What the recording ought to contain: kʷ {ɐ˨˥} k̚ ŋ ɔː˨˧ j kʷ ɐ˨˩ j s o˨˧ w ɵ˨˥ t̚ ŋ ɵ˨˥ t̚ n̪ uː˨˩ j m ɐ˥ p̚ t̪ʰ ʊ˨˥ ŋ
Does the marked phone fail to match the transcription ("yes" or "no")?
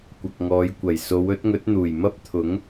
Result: yes